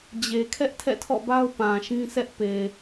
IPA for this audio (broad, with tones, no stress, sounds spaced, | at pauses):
d͡ʑ e˨ kʰ ɛ˦ ʔ tʰ ɛ̰˦˨ tʰ ɔ̰˦˨ b a˦ ʊ̯ p ã˨ ʃ ĩ˦ s ɛ˦ ʔ p e˨